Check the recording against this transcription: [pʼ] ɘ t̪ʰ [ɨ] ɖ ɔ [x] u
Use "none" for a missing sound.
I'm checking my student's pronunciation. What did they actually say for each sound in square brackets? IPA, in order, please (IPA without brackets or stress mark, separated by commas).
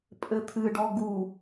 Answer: pʼ, ɨ, ɡ